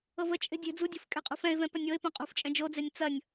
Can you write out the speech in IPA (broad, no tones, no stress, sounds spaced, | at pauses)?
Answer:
ɤ v ə t͡ʃʼ e̤ dʲ e̤ d͡z u dʲ ṳ f kʼ e̤ qʼ ṳ f ɛ̃ ɪ̯ v ɛ̃ p ɐ nʲ ɤ ɪ̯ p õ qʼ ṳ f t͡ʃʼ ɛ̃ d͡ʒ o d͡z e nʲ t͡s ɐ nʲ